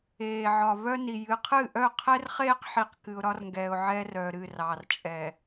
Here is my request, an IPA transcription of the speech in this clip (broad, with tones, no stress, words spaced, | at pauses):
eː˨ʕɒ˨ vœ˦ni˨ jɨ˨qʰɨ˦˨ʔœ˦˨ qʰɛ˦rχeː˦qħi˨q kɨ˨ʊ̯ɾɒ˦rŋɡɛː˨ʊ̯ ʕɛː˦rœː˨ɾɨː˦˨r ɑː˨r t͡ʃʼɛ˨